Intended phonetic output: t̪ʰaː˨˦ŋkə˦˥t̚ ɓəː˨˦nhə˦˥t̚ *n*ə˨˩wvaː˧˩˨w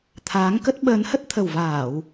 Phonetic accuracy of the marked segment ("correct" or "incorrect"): incorrect